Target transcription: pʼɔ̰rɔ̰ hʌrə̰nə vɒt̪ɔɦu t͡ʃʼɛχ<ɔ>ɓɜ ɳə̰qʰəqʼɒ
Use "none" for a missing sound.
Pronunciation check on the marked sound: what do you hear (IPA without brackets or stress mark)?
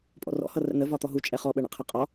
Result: ɔ